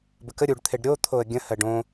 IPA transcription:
bəkə ɾʲuɖt̪ʰeɖ ɾʲo t̪ʰoə̯ɡʲə̃ hɜɖõ

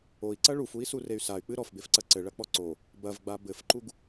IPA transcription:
oi̯ǀɐ ɭufui̯surey̯ say̯k͡pɨ ɾɔfbefǀɐ ǀɘɭɐk͡pɔ ǀo | bɐvɡ͡ba bɘfǃuɡ

